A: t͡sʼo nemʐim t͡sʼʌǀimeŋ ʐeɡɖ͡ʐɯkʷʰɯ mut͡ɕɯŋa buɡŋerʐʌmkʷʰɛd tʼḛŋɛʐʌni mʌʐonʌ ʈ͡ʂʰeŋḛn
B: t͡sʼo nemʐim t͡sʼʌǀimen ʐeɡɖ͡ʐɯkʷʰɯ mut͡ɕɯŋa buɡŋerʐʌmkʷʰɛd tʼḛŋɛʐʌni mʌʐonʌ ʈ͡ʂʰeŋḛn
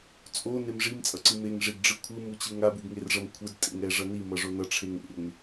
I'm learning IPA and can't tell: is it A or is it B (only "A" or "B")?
A